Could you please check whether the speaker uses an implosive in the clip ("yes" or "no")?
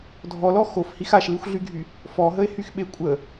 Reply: yes